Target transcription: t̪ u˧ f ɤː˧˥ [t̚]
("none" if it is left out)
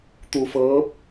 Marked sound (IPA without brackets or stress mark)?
p̚